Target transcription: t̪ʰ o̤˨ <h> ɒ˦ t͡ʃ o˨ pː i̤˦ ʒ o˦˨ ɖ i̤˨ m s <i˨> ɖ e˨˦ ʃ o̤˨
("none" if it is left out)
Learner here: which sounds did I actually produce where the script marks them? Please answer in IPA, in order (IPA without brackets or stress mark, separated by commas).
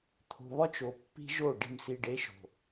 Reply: β, i˨